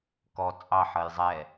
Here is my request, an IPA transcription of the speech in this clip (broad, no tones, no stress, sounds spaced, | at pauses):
k ɔ t͡sʼ ɑ ħ ʌ j zˤ ɛ